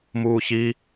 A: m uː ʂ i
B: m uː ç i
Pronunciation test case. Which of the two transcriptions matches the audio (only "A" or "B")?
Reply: B